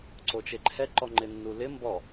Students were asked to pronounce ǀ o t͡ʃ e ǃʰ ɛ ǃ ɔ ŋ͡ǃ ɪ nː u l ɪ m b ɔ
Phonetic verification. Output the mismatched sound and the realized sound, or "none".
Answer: none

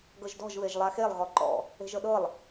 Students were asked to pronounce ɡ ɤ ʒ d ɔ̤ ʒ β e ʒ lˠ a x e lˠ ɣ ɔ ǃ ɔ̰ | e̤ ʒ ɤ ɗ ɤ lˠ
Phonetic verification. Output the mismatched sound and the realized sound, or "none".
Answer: none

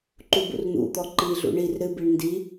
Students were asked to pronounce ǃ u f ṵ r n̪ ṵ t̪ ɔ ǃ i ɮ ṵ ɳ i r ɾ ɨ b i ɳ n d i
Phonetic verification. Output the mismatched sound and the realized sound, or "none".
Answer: f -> b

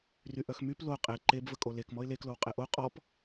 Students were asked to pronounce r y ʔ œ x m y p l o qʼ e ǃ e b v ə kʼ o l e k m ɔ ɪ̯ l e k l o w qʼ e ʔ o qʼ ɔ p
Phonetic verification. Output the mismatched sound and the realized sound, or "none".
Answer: none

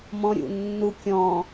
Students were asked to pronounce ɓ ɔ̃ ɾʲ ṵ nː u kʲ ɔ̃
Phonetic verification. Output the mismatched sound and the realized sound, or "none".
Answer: ɓ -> m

